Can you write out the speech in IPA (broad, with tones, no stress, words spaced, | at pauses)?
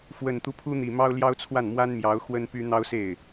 fwə˨˩nt̪u˦ pʰu˥n̪i˨˩mɑ˥ʊ̯ ljɑ˥ʊ̯t͡sʰwa˥˩n mwa˥nmjɑ˧˥ʊ̯ xwə˥npy˥n̪ɑ˥ʊ̯se˥˩ɪ̯